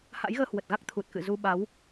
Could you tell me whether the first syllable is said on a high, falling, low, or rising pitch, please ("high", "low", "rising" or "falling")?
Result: rising